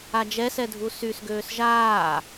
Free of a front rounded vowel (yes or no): no